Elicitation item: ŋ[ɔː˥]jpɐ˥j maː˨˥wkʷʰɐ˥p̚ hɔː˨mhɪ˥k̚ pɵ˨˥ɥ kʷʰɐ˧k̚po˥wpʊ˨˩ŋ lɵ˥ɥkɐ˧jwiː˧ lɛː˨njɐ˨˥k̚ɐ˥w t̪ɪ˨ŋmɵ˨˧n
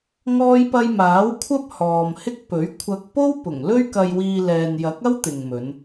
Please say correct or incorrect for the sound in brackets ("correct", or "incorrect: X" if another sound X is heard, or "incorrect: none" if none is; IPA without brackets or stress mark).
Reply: correct